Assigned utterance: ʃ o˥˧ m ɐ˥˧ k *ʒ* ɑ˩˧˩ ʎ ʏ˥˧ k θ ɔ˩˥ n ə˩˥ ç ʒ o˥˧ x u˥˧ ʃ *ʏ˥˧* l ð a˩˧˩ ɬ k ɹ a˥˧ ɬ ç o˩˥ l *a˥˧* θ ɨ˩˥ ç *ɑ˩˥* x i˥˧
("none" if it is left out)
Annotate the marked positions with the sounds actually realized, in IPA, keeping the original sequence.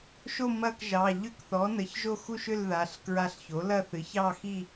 ʒ, ʏ˥˧, ɐ˥˧, ɑ˥˧

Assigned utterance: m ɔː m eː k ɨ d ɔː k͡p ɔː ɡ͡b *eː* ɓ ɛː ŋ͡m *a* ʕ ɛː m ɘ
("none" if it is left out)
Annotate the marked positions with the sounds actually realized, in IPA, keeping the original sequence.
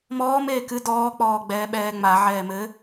ɛː, a

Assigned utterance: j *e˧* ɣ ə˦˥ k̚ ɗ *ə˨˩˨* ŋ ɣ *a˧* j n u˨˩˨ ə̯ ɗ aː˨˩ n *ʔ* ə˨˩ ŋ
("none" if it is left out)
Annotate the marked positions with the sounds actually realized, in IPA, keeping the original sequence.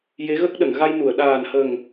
e˧˥, ə˨˩˨, a˧, h

